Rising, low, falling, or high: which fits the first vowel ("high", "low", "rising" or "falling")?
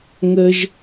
high